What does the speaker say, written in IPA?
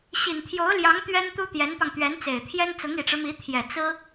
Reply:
ɕ i˨˩ n t̪ʰ j o˧˥ ʊ̯ l j ɑ˧˥ ŋ t̪ ɥ ɛ˥ n t̪ u˥ t̪ j ɛ˧˥ n p ɑ˧ ŋ t̪ ɥ ɛ˧˥ n t͡s e˨˩ ɪ̯ t̪ʰ j ɛ˥ n t͡s ʊ˧˥ ŋ i˨˩ ʈ͡ʂ ɻ̩˦ m i˧˥ t̪ʰ j ɛ˨˩ t͡s ɹ̩˥

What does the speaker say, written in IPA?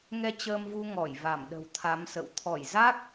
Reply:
ŋ ɛ˧ t͡ɕ əː˧ m v u˧ ŋ ɔ˧˩ j v a˧˩ m ɗ ə̤˨˩ w t̪ʰ a˨˦ m s ə̰˧˨ w t̪ʰ ɔ˧˩ j z a˦˥ k̚

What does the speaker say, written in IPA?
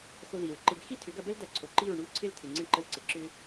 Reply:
x o˧ ð i˨ ɹ ǃ ɪ˧ b x i˦ tʰ ʏ˨˦ ɡ ɐ˧ b ə˦ l d ɐ˧ ǀʰ o˨ ǃ i˦˨ ɹ ɳ u˦˨ l ǀʰ ɪ˦˨ l tʰ ɪ˨ ŋ͡ǀ ɪ˧ ɳ ǃ ə˧ l ǀ ɪ˨ ǁ ʏ˧

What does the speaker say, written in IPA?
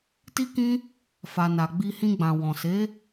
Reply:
t i˦ k ĩ˦ | f a˨ n a˨ ɡ͡b i˧ h ĩ˧ ɡ͡b ã˨ w ɔ̃˨ s e˨˦

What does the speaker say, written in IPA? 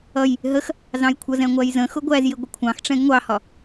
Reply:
ʌ j | ɦ ə x | z ɑ̃ j kʷʰ ʌ z ɛ̃ ŋʷ æ j z ə̃ x ʊ ɡʷ æ z j ɪ ɡʷ ə kʷʰ ɑ̃ x ʈ͡ʂ ɛ̃ ɡ ŋʷ ɑ h ɒ

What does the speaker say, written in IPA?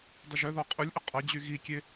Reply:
dˤ ə ʒ œ ð ɔ qʼ u lʲ ʔ ə qʼ ɐ d͡ʑ y ɣ i kʲ e

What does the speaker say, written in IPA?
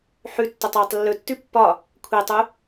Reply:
ħ ʉ tː ɵ tˤ w y tˤ lː ɵ tː ʉ pː ɒ | kʷʰ i tˤ u

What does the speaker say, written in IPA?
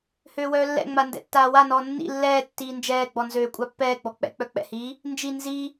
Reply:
h øː w œː lː ɛ̰ ŋ͡m a n d ɛ̰ tː aː w a n ɔː nː ḭ lː ɛː tː iː n d͡ʒ ɛː ɡ͡b ɔ n z øː kʷʼ a pː ɛː ɡ͡b ɔ k͡p ɛ̰ k͡p œ k͡p ɛ̰ h iː | n d͡ʒ i n z i

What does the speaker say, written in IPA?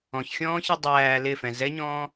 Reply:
ɔ̃ ç xʲ ɔ̃ː ç e dˤ æː l ɪ f ɛ̃ z ɛ ɲ ɔ̃ː

